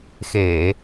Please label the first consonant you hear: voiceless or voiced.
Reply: voiceless